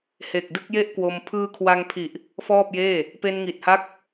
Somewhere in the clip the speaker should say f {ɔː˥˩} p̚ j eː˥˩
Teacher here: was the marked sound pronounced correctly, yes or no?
yes